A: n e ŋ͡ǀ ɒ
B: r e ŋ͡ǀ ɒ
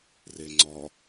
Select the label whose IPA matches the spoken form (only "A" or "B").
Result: B